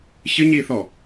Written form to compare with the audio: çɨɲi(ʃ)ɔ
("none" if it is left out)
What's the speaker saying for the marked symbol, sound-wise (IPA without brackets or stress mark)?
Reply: θ